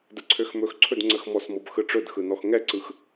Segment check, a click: present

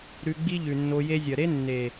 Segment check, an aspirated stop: absent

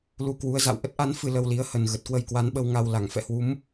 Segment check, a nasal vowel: absent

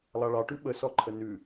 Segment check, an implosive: present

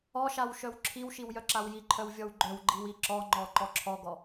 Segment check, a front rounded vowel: present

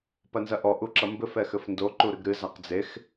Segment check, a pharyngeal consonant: absent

